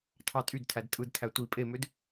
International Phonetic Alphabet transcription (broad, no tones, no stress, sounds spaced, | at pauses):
tʰ ɑ tʼ y d tʰ æ d tʼ ɯ d tʰ æ tʷ i pʼ e m ø d